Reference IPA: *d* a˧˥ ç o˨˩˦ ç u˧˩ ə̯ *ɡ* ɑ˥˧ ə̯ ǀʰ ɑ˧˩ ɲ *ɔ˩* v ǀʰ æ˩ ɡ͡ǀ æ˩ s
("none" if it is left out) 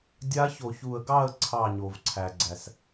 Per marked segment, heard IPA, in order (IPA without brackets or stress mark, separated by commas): dʲ, ɡ, o˩